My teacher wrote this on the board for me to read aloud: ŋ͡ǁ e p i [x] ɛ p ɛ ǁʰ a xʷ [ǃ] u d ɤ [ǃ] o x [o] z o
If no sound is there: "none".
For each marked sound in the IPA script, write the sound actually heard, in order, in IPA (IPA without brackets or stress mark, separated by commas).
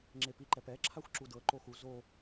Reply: ǃ, ǁ, ǃ, u